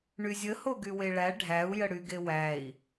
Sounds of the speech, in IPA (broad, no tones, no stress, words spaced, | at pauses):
ɳyzʲə hoɡyweɭæ ɖʱæu̯ jəɽyɡewæi̯